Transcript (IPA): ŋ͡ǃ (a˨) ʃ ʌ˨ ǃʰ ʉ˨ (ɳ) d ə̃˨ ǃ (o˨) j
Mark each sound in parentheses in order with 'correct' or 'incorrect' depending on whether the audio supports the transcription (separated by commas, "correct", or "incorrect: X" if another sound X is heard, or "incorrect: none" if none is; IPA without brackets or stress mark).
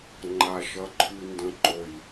correct, incorrect: n, correct